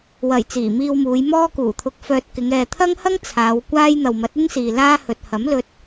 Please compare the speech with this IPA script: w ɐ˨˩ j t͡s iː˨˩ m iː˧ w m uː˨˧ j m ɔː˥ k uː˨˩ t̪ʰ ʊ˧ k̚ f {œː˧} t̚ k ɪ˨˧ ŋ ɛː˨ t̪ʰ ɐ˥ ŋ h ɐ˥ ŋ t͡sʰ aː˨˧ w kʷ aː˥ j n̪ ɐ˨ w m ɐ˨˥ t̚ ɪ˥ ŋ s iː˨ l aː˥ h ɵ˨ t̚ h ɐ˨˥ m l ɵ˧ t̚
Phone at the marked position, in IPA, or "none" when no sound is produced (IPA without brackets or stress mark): œː˧